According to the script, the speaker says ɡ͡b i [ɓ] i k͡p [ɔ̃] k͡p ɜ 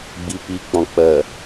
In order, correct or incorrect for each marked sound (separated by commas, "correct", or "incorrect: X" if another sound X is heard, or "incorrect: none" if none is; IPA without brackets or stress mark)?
incorrect: p, correct